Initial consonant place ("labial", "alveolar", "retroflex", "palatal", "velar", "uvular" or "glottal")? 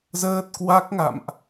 alveolar